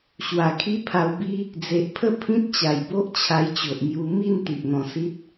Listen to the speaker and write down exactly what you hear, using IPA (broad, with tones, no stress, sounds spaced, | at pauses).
ɕ w a˨˩ kʰ i˦ pʰ a˧ w b i˦ | d͡z e˨ ʔ pʰ ə˥˧ pʰ ĩ˦ t̚ t͡ɕ a˨˩ j b o˦ ʔ t͡ɕʰ a˧ j t͡ɕ o˨ ʔ m j u˧ m i˥˧ n t̪ i˨ ʔ n̪ ɔ̃˧ s i˦ t̚